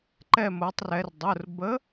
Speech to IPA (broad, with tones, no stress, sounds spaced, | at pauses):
ǃ ɛ˧˩ m o˩˧ tˤ r ɛ˩˧ r dˤ ʊ˩˧˩ r b ə˨˥